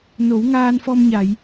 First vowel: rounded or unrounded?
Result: rounded